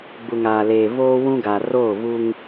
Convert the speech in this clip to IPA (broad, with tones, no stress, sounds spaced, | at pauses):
ɡ͡b u˨ ŋ aː˨ l eː˨ β oː˦ w ũ˦ ɡ a˨ r oː˦˨ β uː˦ ŋ